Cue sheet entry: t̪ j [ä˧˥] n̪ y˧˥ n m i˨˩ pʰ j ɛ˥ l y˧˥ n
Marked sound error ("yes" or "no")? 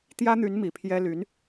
yes